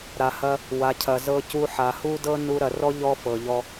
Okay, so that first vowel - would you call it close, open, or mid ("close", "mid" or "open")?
open